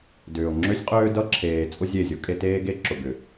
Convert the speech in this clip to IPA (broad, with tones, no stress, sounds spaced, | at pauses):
d ʏː˨ o̯ ŋ͡ǁ ø˦ sʲ qʼ øː˦ d ʌ˦ ǁʰ eː˨ t͡sʼ ʊ˦ zʲ e˦˨ zʲ o˦ kʼ e˦ t eː˦ ɡ e˦ ǁ ʊ˨ ɡ ʏ˨